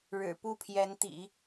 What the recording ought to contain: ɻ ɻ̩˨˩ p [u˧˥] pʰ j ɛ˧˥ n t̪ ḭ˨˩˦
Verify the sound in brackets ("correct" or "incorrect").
incorrect